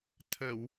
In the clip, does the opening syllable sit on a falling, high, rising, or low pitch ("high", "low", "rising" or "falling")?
low